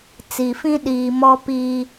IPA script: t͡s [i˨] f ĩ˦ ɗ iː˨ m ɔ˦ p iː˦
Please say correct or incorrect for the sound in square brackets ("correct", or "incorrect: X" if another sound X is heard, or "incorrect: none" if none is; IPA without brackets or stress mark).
correct